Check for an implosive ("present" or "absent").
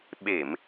present